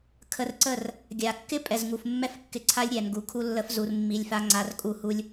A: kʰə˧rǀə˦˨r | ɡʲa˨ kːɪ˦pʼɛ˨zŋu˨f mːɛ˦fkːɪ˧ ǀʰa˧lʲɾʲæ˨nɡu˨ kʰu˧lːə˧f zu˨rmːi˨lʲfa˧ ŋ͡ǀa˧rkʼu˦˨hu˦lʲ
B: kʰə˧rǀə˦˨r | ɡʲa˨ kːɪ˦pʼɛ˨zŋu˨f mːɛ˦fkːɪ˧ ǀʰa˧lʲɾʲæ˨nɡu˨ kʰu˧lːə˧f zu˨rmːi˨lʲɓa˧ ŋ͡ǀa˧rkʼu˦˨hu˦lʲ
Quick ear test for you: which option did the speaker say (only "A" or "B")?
A